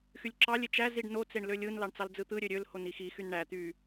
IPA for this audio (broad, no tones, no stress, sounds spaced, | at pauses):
x y lʲ ǁ ɑ lʲ e t͡ʃ æ z i ɖ n o t͡s e ɳ l ø lʲ ɯ n l ɑ ɳ t͡s ɑ l d͡z ɯ t̪ ɯ ɾʲ ø ɾʲ ø l h o n i x i x y n ɳ æ t̪ y